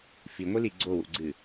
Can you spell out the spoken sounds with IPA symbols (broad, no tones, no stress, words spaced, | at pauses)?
fiŋʷili ɡ͡ǀowṵɡ͡ǀɨ